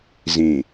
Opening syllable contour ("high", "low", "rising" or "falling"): low